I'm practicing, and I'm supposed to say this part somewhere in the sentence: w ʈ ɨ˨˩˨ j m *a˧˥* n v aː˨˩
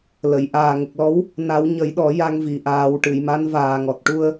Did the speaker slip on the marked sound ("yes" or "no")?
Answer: no